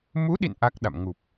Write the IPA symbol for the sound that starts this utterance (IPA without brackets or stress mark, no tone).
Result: m